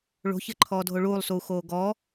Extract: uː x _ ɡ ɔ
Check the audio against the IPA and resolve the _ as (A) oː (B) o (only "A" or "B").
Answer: A